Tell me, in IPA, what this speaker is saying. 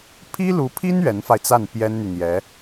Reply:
pʰ i˥ l u˧˥ pʰ i˥ n ɥ ɛ˧˥ n f a˧ ɪ̯ t͡s a˥˩ n p j ɛ˥ n n̪ y˨ n̪ j ɛ˧˥

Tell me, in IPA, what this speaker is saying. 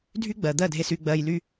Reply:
dʱ y˦ ɡ͡b ɜ˨ d̪ ɜ˦˨ dʱ e˧ s y˧ ɡ͡b ɜ˧ j l y˦

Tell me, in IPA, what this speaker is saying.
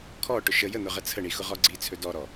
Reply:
kʰ ɔ ʈ ʊ ʃ ə j ə n̪ ʊ ʁ ə t͡sʰ ə ɳ i x ʊ ʁ ɔ ɡ͡ǀ i t͡sʰ ɵ d ɔ ɾ ɔ

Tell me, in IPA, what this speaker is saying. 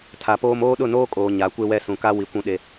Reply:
tʰ a˨ p oː˦ m oː˦ ɗ ʊ˦˨ n oː˦ kʼ oː˨ ɲ a˨˦ kʷ e˦ w ɛ˦ s ũ˨ k a˦ w i˨ kʷ ũ˦ ɗ e˦

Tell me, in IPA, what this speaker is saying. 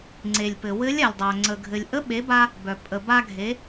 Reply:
ŋ͡ǀ e˩ lʲ p ɘ˩ w ɘ˧˥ lʲ a˩ lʲ dˤ œ˩ ŋ͡ǀ ə˩ ɡʱ ɘ˩ lʲ ʔ ə˧˥ ɓ e˩˧ b a˧ | b œ˩ pʼ ə˩ b a˧ ɡʱ e˩˧

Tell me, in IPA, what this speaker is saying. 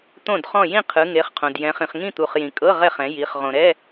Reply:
t̪ õ˥˨ d χ ɔ̃˥˨ j ĩ˥˨ qʰ ɯ˨˦ ŋ e˨˦ χ qʰ õ˨ d j ɛ̃˨˦ χ ĩ˨ χ ŋ ĩ˥˨ t̪ u˨ χ j ĩ˨ kʼ ɤ˧˥˧ ʁ ɛ˥˨ χ ɛ̃˨˦ j i˨˦ χ ʁ õ˨ ɾ ɛ˧˥˧

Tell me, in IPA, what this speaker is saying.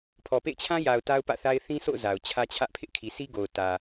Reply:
pʰ ɔ˨ p ḛ˦˨ ɪ̯ t͡ɕʰ ã˦ j a˨ ʊ̯ t a˦ ʊ̯ p ä̰˦˨ θ a˦ ɪ̯ θ ĩ˦ sʰ o̰˦˨ ʊ̯ z a˨ ʊ̯ t͡ɕʰ ä˦ t͡ɕʰ ä˦ ʔ pʰ ɪ˦ ʔ kʰ i˨ s i˦ ɡ o˨ ʊ̯ t ä˨

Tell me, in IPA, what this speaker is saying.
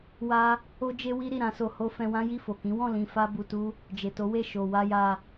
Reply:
w a˦ | o˦ d͡ʒ e˦ w i˦ ɾ i˦˨ ɾ ã˨˦ s o˧ h o˦ f ɛ̃˧ w ã˦ j i˦˨ f o˨ k ĩ˨˦ w ɔ̃˦˨ l ĩ˧ f a˦ b u˧ t u˦ | d͡ʒ e˨ t o˨˦ w e˦˨ ʃ o˨ w a˧ j a˧

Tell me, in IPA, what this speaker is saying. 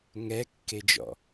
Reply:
ŋ ɛ kː e d͡ʒ ɔ̰

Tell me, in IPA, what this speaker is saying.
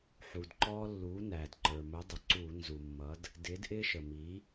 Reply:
ħ u˩ d ǃ ɔː˦ lː uː˩˥ n æː˩ d ǃ ə˞˩ m ʊ˩˥ dˤ ɪ˩ ǀ uː˧˩˧ n z u˩ mː ʌ˩˥ d | d ɪː˩˥ d ʔ ɪː˦ ʃ ə˩ m i˩˥

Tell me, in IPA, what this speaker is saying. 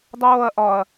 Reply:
dˤ oː ɐ̯ ʔ ɒ ɐ̯

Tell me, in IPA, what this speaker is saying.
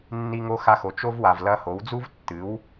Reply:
nː i˧ ŋ o˧ x a˧ x o˨ t͡ʃ o˧ v w a˨ v l ɐ˧ h o˨˦ w d͡z u˦ v tː ɨ˨˦ w

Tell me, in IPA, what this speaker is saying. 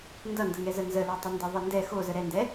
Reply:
n d ʌ n d ə ŋ ɛ z ə n z ə l o tˤ ə n d ʌ ðˤ ʌ n d ɛ x o z ə ɾ ɛ n d ɛ

